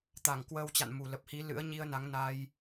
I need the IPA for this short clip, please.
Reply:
t̪ a˧˩ ŋ k w əː˧ w t͡ɕ a̰˧˨ n m u˨˩ l ə˨˩ p̚ h i˨˦ l ɨ̰˧˥ ə̯ ɲ i˧ ə̯ n a˨˦ ŋ n a˧ j

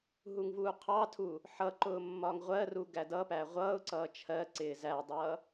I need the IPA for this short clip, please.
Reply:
ɦ u ŋ v uː qʰ ɑ tʰ u | ħ ʌ ǃ ʊː mː ɒ ŋ ʁʷ ɜ r u ɡ æ d ʌ p æ ʁʷ ʌː ʊ̯ ǀ ʌː t͡ʃʰ ɜ ǀ ɪː z æ dˤ ʌː

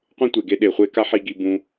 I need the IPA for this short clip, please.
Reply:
qʷ ẽ˦ tʷ e˨ ɡ e˧ ɗ e˨ χʷ e˧ k a˦ ħ i˨˦ ɡ i˧ b ũ˧

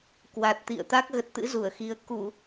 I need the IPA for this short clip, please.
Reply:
k w a˨˩ t̚ t̪ ḭ˧˨ ə̯ t̪ a˦˥ k̚ ɣ ə˨˩ t̚ t̪ ɨ̰˧˥ z u˧˩ ə̯ x i˧ ə̯ k u˧˩˨

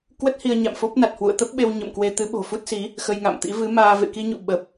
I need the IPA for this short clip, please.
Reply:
k w ə˦˥ t̚ h i˧ ə̯ ɲ a̰˧˨ m f o˦˥ p̚ n a˨˩ t̚ h w ṵ˧˨ ə̯ t̪ ə˦˥ p̚ ɓ e˧ w ɲ ə̰˧˨ m k w e˧ t̪ ɨ˨˦ ɓ o̤˨˩ f u˦˥ t̚ s i˨˦ | x ə˧ j ŋ a̰˧˨ m t̪ ḭ˧˥ v ɨ˨˦ m aː˧ v ḛ˧˨ k i˧ ɲ ṵ˧˨ ɓ ə˨˩ p̚

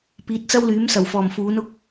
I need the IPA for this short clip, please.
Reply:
p iː˨˥ t̚ t͡s ɐ˥ w l yː˨˥ m s ɐ˨˩ w f ɔː˨˩ m f uː˨˥ n ʊ˧ k̚

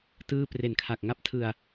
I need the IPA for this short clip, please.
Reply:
t ɯː˥˩ p r e˨˩ n kʰ a˨˩ k̚ ŋ a˥˩ p̚ tʰ ɯ˧ a̯

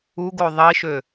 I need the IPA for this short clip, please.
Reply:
u ɡ o ðˤ i ʃ ø

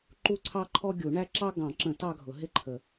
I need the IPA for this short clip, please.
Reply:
ǃ u˦ ǀʰ ɑ˦ ǃʰ ɔ˦ ɡʲ u˨˩˦ ɳ æ˦ ǁ ɑ˦ ɡ ɑ̃˨˩˦ ǁ ə̃˨˩˦ t ɑ˦ ɡʱ ʊ˨˩˦ ɦ ɪ˦ ǃʰ ə˨˩˦

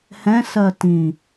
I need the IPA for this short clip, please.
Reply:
h ɛ̃ s ɜ t ĩ

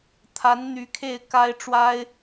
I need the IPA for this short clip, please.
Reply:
t̪ʰ a˧˥ n n̪ y˧˥ kʰ e˥˩ ɪ̯ k a˥ ɪ̯ ʈ͡ʂ w a˥ ɪ̯

